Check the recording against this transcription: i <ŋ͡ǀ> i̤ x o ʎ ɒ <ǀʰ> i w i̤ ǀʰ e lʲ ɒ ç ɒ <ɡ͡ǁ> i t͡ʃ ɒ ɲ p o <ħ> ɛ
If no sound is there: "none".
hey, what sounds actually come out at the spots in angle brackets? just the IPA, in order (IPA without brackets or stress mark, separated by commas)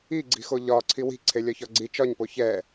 ɡ͡ǀ, ǀʰ, ɡ͡ǀ, ç